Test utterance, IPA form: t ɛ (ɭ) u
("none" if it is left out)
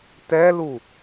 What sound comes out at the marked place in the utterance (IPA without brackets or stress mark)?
l